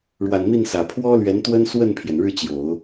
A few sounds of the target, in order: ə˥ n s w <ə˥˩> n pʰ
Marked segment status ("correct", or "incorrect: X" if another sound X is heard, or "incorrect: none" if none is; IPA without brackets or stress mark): correct